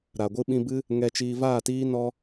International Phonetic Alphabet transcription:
ɾ a˨ ɡʷ ɨ˧ ɓ ĩ˧ b ɨ˦ | ŋ ɛ˧ t͡ʃ iː˧ v aː˦˨ t iː˦ n ɔ˦

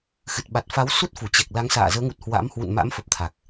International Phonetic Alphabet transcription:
x ɨ˨˩ t̚ ɓ a˨˩ t̚ f a˨˦ w s u˦˥ t̚ f u˧˩ t͡ɕ ɛ˨˩ k̚ l a˨˦ ŋ s a̰ː˧˨ z əː˨˦ ŋ u˨˩ t̚ h w a̰˧˥ m h w ṵ˧˨ n m a̰˧˥ m f ə˨˩ p̚ t̪ʰ a˨˩ k̚

